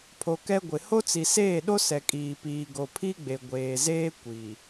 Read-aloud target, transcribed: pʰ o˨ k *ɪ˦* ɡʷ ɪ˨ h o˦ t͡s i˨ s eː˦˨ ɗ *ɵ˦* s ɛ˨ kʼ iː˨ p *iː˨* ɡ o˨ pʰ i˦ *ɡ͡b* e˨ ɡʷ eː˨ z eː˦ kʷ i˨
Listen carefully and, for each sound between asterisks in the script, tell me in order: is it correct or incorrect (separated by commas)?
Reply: incorrect, incorrect, correct, correct